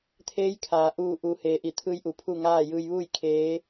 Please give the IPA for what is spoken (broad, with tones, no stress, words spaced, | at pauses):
t̪ʰeː˧˥jkʰaː˩˧ ʔuː˧˩ ʔu˩˧heː˩ ʔi˧˩t̪ʰɯː˧jʔu˩ pʰu˥˨ŋaː˥˨ jɯː˧jʋuː˥˨j kʰeː˧˥